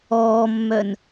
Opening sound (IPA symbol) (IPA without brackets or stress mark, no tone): ɔː